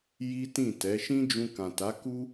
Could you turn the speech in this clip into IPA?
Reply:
ji˦tĩ˦˨tɛ˨˦ ʃĩ˦d͡ʒũ˧kã˨ ta˨˦ku˦

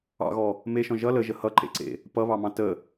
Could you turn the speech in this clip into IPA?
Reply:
ɑ̰ɣɔ | meʃɔ̃ ʒʌ ləʒə hʌǃḛǀḛ | pʌβɑmɑ̃ tə

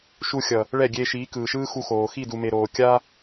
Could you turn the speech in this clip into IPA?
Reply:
ʃu˧xʲʌ˨ | ɭɛ˦˨ ɡʲeː˧ʃiː˨˦kɯː˨ ʃɯː˦xu˧xoː˨ xi˦˨du˨me˨ɾoː˨ kʲa˦

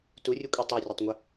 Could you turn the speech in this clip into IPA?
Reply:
turʲukʷʼi tˤorʲɐtˤŋʷɐ

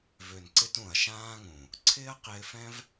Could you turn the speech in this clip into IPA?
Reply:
vø˨n ǀɪ˦t ũ˨ɐ̯ʃãː˦ŋũ˨ | ǀʰɪː˦ɐ̯qɪː˧fɛ̃˦v

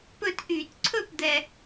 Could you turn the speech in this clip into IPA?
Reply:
pɵ˥˩t ʔy˧˩˧t ǀʰɵ˥˩pd̪ɛ˨˩

